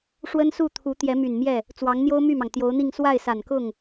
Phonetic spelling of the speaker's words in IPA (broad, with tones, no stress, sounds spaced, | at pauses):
ʂ w ə˥ n s u˥˩ t̪ʰ u˧˥ t̪ j ɛ˧˥ m y˨˩ n m j ɛ˥˩ | t͡s w ɑ˧˥ ŋ n̪ j o˥ ʊ̯ m y˥˩ m ɑ˩ ŋ t̪ j o˧˥ ʊ̯ n̪ i˥˧ ŋ s w a˥˩ ɪ̯ s a˨˩ n k ʊ˥˩ ŋ